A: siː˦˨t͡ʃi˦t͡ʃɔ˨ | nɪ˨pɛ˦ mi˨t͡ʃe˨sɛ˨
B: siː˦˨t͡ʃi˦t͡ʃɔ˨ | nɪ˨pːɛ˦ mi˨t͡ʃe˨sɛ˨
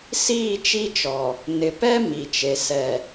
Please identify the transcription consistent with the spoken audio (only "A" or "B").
A